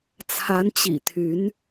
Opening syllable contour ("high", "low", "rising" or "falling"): rising